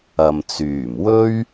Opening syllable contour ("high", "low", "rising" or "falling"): low